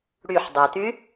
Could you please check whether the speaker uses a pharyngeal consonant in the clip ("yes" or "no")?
yes